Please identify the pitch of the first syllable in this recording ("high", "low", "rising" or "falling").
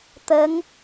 rising